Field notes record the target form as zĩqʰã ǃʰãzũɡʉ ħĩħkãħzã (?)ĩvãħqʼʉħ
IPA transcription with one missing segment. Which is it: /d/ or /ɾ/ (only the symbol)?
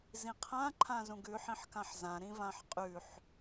ɾ